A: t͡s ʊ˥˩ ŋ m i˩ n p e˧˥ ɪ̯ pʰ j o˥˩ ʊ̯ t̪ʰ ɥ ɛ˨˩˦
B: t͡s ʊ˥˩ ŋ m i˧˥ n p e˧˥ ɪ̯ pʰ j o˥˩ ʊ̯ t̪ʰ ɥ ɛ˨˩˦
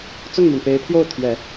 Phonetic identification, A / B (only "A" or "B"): A